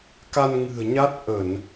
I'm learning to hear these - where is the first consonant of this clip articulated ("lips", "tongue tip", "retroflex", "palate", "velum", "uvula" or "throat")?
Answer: velum